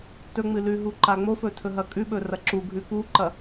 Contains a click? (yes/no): yes